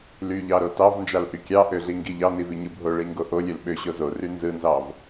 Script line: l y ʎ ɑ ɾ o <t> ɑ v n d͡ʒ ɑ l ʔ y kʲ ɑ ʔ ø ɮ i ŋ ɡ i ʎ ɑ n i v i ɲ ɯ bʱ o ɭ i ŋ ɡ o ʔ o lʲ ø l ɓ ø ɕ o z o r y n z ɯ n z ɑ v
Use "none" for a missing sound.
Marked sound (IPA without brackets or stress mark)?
t